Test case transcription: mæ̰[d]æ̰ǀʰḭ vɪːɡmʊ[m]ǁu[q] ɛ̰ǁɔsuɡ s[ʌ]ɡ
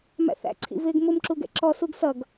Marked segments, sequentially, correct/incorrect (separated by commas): incorrect, correct, incorrect, correct